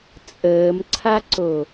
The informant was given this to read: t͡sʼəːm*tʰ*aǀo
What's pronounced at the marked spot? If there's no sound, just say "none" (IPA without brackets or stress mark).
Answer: ǀʰ